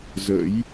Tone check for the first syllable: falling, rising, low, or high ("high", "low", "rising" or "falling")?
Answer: rising